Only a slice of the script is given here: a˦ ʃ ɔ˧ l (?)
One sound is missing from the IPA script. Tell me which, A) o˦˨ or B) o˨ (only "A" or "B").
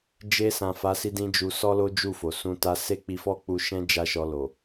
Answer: B